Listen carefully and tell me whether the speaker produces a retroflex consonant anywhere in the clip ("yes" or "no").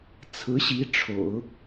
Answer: yes